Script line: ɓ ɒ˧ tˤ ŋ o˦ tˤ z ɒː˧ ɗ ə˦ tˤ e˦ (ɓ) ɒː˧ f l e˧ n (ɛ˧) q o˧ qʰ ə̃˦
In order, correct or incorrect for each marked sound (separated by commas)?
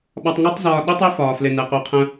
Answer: incorrect, correct